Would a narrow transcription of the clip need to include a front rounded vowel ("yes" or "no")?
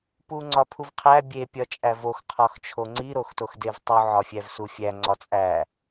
no